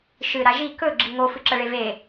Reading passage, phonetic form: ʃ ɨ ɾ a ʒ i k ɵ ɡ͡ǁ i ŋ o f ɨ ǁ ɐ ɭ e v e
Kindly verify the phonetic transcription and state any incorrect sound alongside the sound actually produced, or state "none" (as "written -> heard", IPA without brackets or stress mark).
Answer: none